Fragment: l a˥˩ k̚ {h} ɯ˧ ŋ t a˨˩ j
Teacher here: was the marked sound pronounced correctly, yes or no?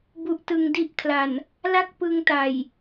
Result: no